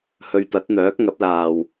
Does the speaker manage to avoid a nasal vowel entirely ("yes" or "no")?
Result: yes